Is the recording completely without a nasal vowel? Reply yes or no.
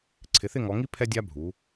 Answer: yes